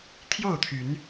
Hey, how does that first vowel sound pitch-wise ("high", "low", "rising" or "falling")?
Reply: falling